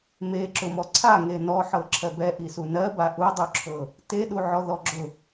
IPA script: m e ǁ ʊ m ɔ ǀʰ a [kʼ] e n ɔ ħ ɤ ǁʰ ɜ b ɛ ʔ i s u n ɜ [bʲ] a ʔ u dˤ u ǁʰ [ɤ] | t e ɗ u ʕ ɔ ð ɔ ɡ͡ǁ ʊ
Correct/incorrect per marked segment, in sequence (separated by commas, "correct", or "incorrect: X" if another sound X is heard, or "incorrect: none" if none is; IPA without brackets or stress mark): incorrect: ŋ, incorrect: b, correct